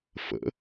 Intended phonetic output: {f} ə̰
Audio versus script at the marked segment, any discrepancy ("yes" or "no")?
no